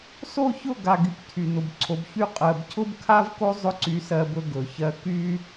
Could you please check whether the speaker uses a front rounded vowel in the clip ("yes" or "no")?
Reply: yes